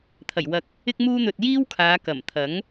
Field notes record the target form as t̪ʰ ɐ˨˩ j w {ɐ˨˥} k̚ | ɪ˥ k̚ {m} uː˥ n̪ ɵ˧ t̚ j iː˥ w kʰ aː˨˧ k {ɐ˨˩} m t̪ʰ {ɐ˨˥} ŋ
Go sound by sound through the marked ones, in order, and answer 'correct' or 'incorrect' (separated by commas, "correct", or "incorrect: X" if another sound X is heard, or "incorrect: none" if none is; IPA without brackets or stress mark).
correct, correct, correct, correct